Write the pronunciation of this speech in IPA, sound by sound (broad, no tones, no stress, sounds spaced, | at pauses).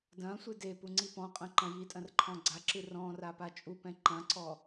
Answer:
d ɐ̃ sʷ ɨ d e p u ŋ͡ǀ i p ɔ̃ qʼ ɐ̃ ǃ ɐ̃ j i tʼ ɐ̃ r ǃʰ ɔ̃ ɡ͡ǀ a ǁ ɨ r ɔ̃ r a p a t͡ʃʼ u p ɛ̃ ǃ ɐ̃ ǀ ɔ